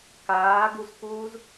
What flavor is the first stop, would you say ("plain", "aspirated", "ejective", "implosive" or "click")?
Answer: plain